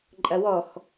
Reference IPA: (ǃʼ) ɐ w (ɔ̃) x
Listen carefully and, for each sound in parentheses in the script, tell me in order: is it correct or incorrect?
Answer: correct, incorrect: ɔ

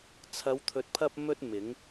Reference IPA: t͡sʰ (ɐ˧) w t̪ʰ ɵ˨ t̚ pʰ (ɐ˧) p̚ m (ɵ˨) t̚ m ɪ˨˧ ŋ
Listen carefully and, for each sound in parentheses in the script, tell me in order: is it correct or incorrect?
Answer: incorrect: ɐ˨˧, correct, incorrect: ɵ˧

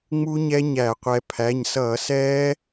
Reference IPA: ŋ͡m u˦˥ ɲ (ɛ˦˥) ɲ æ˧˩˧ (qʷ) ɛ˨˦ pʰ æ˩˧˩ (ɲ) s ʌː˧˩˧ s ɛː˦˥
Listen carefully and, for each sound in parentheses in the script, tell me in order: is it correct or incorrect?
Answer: correct, correct, correct

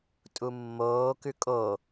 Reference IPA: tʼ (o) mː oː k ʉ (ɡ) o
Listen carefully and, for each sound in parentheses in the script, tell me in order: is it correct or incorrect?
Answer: incorrect: u, incorrect: kʼ

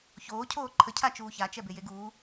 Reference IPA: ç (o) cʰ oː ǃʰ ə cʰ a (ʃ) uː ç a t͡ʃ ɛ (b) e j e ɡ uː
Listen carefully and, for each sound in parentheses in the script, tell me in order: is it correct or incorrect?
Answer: incorrect: oː, incorrect: t͡ʃ, correct

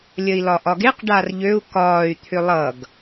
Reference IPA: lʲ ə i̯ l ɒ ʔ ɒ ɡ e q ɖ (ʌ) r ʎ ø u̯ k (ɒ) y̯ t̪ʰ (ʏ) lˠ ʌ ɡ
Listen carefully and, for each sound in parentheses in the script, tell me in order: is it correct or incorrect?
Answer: incorrect: a, incorrect: ɒː, correct

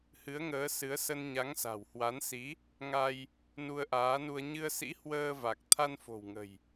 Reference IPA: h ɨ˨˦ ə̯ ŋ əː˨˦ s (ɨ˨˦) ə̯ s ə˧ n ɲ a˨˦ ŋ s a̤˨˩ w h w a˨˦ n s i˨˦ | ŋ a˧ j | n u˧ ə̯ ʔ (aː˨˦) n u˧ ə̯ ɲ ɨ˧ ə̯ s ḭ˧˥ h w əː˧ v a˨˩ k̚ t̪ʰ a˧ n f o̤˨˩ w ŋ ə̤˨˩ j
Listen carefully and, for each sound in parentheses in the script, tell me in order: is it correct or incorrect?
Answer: correct, correct

